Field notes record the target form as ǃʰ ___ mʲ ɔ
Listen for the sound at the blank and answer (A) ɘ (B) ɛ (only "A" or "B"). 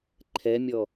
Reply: B